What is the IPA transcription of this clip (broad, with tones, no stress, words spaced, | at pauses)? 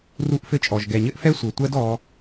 ru˦ʔfɘ˦t͡ʃʼɔ˨ʒ ɡɛ˨ɲɘ˦ʔfɛ˦ sʷɘ˨tʷɜ˦d ɔ˧